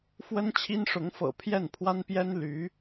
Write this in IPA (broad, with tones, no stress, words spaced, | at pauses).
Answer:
fwə˥nt͡ɕʰi˥nʂʊ˧˥ŋfɤ̰˨˩ pʰjɛ˥˩npʰwa˥npjɛ˥n ly˧˥